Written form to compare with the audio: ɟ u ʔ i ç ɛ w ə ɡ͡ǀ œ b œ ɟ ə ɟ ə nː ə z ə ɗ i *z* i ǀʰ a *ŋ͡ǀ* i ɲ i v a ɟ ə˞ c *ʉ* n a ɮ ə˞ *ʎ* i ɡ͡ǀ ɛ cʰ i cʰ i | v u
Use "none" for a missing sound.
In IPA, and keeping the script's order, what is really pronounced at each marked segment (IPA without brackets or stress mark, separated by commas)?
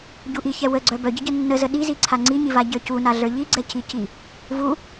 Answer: z, ŋ͡ǀ, u, ʎ